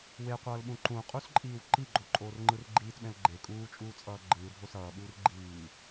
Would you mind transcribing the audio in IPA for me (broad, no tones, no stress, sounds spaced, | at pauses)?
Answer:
w e qʷ ʌː l ɓ ũ ǃ ũ qʼ u s ǃʼ iː w ǃ i ɡ͡ǃ o ǃʼ oː r ŋ͡ǃ ɯ r ɡ͡ǃ iː t ɓ ɛ̃ l ɡ͡ǃ e kʼ uː t͡ʃʼ uː t͡sʼ ʌː ɡ͡ǃ ɯː dʱ o s ʌː ɓ uː r ɡ͡ǃ iː